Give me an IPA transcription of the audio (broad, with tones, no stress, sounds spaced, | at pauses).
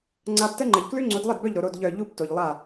ŋ͡ǀ a˧ b t ə˦ ŋ͡ǃ ə˨ ʎ k l ʉ˦ ŋ͡ǀ o˨˦ d lˠ ə˦˨ d b œ˦˨ ʎ ɾ o˨ ɾ o˦˨ d ʎ œ˦˨ ʎ u˦ b t o˨ ʎ lˠ a˦˨